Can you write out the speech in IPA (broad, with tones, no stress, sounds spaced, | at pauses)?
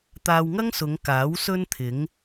t̪ aː˧ w ŋ ɐ˥ ŋ s ʊ˨˧ ŋ k aː˨˥ w s ɵ˥ n t̪ʰ ɪ˨˥ ŋ